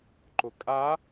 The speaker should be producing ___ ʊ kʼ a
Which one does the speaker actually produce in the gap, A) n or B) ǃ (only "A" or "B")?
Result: B